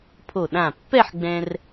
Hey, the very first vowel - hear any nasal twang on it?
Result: no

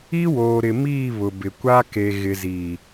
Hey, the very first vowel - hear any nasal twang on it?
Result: no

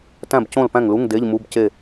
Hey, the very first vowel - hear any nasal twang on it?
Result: yes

